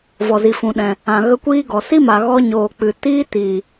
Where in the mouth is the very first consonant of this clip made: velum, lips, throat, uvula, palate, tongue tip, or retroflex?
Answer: lips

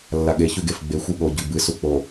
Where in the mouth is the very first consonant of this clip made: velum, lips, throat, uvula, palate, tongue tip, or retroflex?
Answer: tongue tip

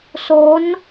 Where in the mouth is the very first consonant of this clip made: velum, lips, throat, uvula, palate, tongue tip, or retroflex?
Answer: tongue tip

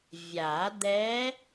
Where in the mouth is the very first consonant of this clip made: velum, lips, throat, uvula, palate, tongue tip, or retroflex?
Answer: lips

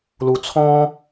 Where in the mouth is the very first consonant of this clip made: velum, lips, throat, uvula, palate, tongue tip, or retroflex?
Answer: tongue tip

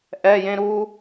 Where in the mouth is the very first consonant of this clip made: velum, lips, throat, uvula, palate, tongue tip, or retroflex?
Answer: throat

